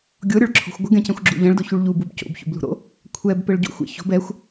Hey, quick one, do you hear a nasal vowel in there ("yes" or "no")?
yes